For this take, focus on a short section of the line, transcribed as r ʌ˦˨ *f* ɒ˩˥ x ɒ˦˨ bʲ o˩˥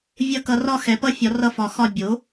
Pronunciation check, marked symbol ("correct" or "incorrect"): correct